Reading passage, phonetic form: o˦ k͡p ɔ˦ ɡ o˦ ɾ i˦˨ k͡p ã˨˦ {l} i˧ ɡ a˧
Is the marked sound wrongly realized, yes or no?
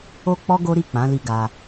no